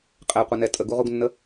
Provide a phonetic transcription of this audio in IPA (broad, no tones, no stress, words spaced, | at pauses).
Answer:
qʼɛqʷənɛ tʼəɡuʁuɡnːə